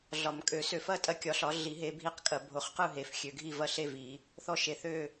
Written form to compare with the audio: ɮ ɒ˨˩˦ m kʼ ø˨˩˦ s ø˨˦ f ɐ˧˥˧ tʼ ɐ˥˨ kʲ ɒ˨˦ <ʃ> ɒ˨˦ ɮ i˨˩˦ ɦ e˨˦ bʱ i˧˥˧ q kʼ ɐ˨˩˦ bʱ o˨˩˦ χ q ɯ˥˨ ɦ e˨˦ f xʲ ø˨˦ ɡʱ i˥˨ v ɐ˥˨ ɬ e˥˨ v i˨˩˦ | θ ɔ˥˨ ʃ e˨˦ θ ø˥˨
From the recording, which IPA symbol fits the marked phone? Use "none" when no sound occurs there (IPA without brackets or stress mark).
ɬ